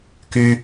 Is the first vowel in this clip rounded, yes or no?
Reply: yes